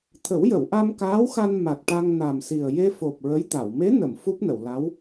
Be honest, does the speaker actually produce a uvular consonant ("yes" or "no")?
no